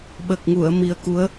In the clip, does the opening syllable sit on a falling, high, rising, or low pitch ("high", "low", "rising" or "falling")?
low